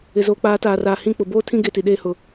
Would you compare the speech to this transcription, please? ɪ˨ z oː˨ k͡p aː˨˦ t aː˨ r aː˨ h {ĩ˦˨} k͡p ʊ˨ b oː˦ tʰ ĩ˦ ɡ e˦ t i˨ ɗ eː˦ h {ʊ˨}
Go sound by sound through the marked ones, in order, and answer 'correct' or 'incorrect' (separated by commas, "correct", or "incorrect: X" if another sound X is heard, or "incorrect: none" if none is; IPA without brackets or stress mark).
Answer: correct, correct